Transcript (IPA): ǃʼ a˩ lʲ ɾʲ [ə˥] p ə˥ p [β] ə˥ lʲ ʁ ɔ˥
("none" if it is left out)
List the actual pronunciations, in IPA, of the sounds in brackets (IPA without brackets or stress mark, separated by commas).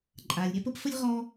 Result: a˥, f